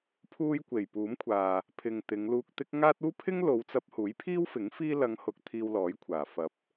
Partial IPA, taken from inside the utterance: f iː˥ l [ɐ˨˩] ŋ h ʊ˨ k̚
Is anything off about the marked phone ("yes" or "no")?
yes